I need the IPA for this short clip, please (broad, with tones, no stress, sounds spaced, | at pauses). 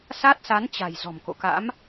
s a˦˥ t̚ s a˨˦ n t͡ɕ a̤˨˩ j z ɔ̤˨˩ m k o̰˧˨ k a̰˧˥ m